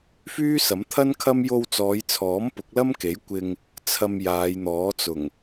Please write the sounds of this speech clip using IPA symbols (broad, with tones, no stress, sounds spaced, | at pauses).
f yː˥ s ɐ˨˥ m t̪ʰ ɐ˥ n kʰ ɐ˥ m j o˧ w t͡s ɔː˨˧ j t͡sʰ ɔː˨˥ m p ʊ˨˥ k̚ l ɐ˥ m k e˨˥ j kʷ ɪ˧ ŋ | t͡sʰ ɐ˧ m j aː˨˧ j n̪ ɔː˨˥ t͡s ʊ˨˩ ŋ